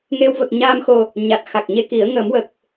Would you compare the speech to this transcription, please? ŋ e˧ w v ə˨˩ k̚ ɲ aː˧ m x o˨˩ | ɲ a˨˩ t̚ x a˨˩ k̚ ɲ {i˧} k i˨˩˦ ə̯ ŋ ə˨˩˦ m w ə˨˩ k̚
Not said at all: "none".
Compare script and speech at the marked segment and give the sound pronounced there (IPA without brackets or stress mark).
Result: e˧